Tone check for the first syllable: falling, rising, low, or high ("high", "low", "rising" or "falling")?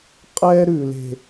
high